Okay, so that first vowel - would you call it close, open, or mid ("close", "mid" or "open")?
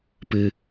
close